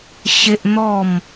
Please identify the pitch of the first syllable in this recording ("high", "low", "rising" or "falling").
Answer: high